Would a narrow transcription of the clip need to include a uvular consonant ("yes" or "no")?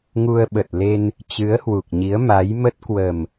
no